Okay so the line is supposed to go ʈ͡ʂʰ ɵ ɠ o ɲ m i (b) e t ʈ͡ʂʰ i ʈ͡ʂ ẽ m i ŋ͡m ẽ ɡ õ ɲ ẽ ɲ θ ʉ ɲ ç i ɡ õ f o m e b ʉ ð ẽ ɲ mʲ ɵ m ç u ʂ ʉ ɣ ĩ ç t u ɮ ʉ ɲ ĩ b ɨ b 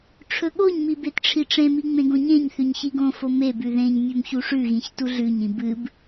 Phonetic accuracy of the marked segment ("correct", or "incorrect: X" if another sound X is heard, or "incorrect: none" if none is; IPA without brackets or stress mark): correct